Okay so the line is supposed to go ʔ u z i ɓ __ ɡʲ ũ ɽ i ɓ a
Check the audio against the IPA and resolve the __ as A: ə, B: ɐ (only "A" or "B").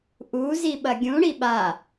B